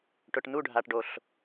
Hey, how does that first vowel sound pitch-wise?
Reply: low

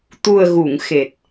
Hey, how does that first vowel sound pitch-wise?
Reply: low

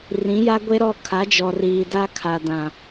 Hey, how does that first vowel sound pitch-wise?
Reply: rising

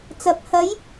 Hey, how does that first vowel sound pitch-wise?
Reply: rising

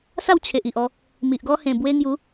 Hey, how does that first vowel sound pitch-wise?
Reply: falling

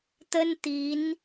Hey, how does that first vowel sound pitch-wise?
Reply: high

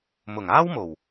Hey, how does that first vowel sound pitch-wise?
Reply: low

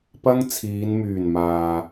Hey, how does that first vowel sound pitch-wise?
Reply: high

